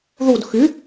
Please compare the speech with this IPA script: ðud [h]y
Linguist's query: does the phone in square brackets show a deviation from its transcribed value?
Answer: yes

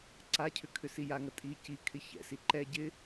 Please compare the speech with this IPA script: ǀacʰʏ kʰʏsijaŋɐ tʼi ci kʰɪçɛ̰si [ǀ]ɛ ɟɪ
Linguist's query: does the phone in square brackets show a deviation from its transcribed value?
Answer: yes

